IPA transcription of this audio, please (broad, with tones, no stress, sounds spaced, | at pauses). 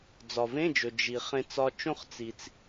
d͡z ɒ˩ v ẽ˧˥˧ d͡ʒ ɵ˩ d͡ʒ i˩ χ ẽ˧ t͡s ɒ˧ t͡ʃ õ˥˧ χ t͡s i˩ t͡s